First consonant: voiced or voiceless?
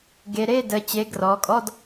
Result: voiced